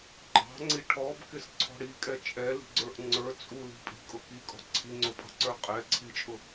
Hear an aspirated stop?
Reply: yes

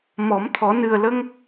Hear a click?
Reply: no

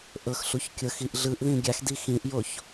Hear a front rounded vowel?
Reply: no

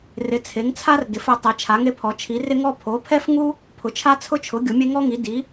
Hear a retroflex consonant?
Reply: no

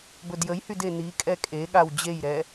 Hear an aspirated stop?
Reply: no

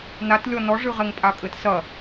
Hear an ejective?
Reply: yes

